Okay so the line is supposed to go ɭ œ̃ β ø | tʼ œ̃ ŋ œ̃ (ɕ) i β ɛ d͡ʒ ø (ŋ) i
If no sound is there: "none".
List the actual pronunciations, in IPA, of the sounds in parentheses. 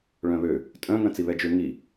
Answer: t͡s, ŋ

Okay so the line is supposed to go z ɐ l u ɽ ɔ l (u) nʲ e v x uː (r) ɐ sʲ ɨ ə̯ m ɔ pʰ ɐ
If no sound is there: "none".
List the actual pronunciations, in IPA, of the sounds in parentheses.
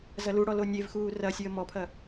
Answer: o, r

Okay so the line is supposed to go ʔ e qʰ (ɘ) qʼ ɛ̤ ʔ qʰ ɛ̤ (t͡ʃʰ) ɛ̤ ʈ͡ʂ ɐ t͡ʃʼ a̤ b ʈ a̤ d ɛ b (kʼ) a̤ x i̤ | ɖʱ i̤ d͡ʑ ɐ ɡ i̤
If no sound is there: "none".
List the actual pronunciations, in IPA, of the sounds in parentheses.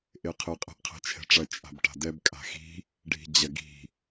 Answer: ɘ, t͡ʃʰ, kʼ

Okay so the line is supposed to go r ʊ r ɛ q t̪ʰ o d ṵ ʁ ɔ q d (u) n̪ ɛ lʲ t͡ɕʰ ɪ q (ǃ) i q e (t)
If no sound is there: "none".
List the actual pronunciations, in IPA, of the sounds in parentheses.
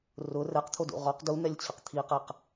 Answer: u, t̪ʰ, q

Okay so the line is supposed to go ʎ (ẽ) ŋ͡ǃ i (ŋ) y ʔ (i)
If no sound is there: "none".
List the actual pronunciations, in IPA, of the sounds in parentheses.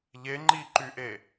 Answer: e, ǃ, e

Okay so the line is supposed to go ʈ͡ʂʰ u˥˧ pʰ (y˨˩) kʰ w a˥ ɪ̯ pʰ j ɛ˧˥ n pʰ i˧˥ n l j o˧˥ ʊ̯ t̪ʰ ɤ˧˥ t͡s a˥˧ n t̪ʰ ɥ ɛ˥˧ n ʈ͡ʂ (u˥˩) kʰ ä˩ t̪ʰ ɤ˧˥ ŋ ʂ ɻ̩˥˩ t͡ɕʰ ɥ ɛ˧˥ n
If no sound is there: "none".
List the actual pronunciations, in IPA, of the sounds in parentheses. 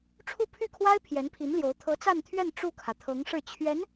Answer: y˥˩, u˥˩

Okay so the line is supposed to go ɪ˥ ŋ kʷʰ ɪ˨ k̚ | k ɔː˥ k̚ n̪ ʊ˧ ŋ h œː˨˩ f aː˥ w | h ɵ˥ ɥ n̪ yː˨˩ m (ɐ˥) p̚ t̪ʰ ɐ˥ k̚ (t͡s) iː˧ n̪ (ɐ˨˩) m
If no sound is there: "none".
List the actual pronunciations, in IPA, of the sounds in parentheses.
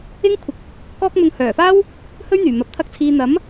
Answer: ɐ˨, t͡sʰ, ɐ˨˥

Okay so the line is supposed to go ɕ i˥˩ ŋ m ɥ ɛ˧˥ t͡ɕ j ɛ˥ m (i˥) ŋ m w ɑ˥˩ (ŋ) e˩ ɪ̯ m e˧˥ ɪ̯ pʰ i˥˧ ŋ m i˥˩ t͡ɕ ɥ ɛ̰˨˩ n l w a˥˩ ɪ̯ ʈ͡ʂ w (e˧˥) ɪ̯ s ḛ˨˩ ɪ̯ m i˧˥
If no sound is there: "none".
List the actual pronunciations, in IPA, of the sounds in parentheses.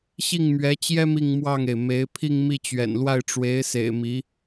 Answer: i˥˧, ŋ, e˧˥

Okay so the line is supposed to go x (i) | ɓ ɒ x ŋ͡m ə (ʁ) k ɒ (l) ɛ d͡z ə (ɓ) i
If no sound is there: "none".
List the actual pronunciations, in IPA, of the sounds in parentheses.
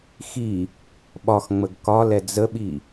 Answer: i, ɡ, l, ɓ

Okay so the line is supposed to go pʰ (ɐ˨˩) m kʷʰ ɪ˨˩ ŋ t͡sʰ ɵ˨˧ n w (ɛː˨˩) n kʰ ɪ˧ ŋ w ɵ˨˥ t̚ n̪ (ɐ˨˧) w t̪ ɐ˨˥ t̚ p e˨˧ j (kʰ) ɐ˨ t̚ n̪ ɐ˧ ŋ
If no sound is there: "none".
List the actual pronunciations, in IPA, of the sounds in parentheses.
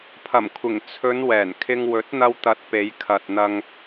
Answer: ɐ˨˩, ɛː˨˩, ɐ˧, kʰ

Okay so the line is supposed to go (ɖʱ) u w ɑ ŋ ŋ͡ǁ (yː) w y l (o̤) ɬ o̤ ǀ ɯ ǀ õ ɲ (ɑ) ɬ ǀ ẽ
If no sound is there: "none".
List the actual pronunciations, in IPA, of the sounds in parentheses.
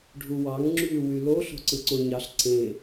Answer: ɖʱ, yː, o, ɑ

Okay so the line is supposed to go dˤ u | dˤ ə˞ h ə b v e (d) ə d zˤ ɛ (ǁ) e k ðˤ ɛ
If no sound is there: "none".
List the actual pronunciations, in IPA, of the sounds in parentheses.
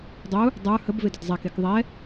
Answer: d, k

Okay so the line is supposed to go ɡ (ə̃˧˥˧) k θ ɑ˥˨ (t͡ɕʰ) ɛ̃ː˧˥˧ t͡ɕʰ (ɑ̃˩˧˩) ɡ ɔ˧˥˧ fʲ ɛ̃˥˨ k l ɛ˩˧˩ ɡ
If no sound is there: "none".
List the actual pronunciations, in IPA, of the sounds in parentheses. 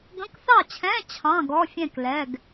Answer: ə̃˧˥˧, t͡ɕʰ, ɑ̃˧˥˧

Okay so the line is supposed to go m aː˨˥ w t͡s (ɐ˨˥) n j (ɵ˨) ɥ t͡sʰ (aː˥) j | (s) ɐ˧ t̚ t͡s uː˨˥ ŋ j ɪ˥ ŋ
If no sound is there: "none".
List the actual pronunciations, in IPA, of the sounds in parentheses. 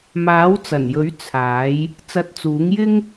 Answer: ɐ˨˩, ɵ˨˥, aː˨˥, t͡s

